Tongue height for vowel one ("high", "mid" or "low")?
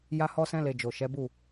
low